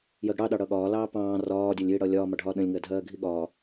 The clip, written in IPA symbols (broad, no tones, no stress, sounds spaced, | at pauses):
j ə ɡ ɽ ɑ ɗ ɑ ɽ ʌ ɠ ɒː l ɑː p ɑ̃ː r ɒː dʲ ʌ lʲ j i ɽ ʌ lʲ ɒː m ɑ ɖʱ ɒː ɗ ə̃ lʲ ŋ ɜ dʱ ɜː ɡʱ i ɠ ɒː